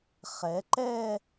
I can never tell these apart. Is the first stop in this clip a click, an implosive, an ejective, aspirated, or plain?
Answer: click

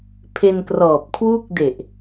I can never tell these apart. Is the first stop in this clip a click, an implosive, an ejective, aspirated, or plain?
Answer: aspirated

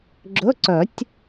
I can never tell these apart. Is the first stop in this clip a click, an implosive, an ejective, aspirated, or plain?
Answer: click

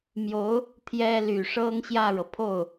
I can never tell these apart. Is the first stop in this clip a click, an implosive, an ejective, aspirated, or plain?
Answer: aspirated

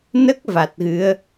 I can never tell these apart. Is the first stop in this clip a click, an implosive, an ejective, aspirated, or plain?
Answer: plain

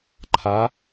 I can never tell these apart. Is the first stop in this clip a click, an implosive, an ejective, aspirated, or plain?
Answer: click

